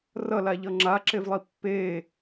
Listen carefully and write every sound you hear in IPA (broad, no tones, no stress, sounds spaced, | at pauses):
r ʌ l a ʎ ʌ ŋ͡ǁ a ǁ e v lˠ i pː eː